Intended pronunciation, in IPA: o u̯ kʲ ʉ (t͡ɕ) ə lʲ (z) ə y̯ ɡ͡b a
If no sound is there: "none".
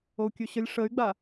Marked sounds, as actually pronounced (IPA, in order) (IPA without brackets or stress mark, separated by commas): ɕ, ʂ